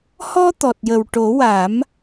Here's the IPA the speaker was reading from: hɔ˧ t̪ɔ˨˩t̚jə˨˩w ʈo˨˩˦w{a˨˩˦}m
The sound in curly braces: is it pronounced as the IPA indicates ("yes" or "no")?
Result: yes